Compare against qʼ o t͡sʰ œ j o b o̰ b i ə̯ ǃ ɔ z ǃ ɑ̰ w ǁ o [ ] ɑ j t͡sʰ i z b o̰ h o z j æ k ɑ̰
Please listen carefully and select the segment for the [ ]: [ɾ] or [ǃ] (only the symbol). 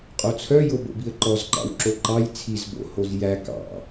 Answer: ǃ